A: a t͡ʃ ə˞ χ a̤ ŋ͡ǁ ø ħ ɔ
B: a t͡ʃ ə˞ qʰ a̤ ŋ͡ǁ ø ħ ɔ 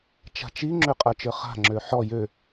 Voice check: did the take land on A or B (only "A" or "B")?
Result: A